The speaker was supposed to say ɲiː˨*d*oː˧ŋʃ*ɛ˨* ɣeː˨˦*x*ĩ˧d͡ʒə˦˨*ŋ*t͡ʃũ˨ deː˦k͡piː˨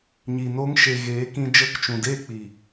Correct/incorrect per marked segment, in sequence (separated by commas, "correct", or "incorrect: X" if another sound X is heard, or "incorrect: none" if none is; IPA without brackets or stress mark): incorrect: n, incorrect: e˨, incorrect: k, incorrect: k